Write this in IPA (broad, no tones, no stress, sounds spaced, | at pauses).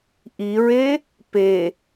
ʔ i ɹ e | p e